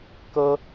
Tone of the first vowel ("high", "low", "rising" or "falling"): high